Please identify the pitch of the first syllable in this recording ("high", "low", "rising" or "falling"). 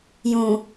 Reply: low